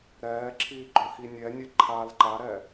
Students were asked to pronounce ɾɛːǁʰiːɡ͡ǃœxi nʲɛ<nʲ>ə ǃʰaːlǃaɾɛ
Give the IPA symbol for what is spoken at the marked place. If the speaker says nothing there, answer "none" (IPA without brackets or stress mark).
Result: nʲ